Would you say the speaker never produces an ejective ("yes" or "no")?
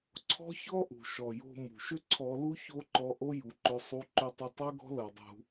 yes